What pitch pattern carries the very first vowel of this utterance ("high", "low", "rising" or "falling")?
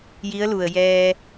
rising